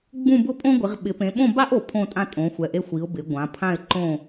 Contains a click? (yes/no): yes